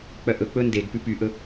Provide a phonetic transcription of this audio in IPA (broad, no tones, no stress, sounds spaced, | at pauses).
k͡p œ ʔ ɵ k͡p ɵ n d e ɡ p ʉ p y ʔ ɵ